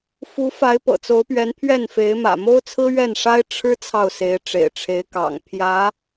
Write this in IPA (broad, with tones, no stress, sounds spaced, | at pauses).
f u˧˥ f a˧˥ ɪ̯ p ɤ̰˨˩ t͡s o˧˥ ʊ̯ p ɥ ɛ˧˥ n pʰ ɥ ɛ˥˩ n f e˧˥ ɪ̯ m ä̰˨˩ m o˥ ʊ̯ t͡sʰ ɹ̩˥ ɥ ɛ˥˩ n ʂ a˥ ɪ̯ ʈ͡ʂʰ ɻ̩˥ t͡sʰ ɑ˥˩ ʊ̯ s e˧˥ ɪ̯ ʈ͡ʂ ḛ˨˩ ɪ̯ ʈ͡ʂʰ e˧˥ ɪ̯ k ɑ̰˨˩ ŋ pʰ j ä˧˥